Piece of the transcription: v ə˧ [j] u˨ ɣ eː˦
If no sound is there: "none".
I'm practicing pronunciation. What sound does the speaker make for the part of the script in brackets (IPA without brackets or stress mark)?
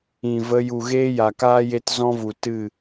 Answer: j